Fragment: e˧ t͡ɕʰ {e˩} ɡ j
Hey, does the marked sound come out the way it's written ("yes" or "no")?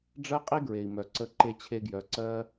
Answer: no